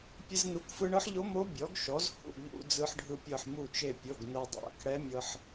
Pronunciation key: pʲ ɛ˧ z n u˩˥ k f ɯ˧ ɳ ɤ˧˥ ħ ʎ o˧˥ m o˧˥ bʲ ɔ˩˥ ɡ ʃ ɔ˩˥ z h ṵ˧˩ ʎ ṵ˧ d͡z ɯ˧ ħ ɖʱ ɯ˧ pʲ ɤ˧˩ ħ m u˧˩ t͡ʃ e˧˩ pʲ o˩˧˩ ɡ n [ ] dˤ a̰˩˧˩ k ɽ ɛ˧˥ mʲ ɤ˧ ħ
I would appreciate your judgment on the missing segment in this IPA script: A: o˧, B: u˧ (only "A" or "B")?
A